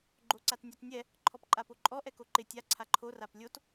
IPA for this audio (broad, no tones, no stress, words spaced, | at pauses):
ɡ͡ǃoǀatnʲɔtnʲɛ | ǃʰɔpǃʼapoǃʼɔ ʔɛkoǃɪ tʲa ǀʰaǃʰo raplʲot